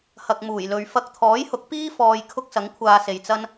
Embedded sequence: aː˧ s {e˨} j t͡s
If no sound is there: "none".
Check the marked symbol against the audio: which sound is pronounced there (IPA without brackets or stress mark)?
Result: e˨